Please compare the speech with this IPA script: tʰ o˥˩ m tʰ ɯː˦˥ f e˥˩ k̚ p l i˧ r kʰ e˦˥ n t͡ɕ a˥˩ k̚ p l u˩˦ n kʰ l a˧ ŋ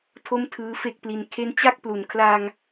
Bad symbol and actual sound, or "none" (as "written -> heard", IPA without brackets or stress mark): r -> n